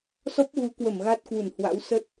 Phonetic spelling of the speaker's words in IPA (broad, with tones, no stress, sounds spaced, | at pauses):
s ɔ˦˥ p̚ ɣ u˨˦ k w ə˧˩ m ɣ a˦˥ t̚ k w u˧˩ n h w a̰˧˥ w s ə˦˥ t̚